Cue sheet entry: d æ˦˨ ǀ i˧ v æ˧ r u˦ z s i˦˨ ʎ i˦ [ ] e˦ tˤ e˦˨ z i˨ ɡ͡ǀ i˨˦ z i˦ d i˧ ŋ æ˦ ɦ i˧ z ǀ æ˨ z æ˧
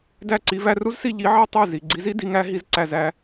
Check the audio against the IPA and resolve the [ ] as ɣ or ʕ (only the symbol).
ʕ